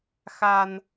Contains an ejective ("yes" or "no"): no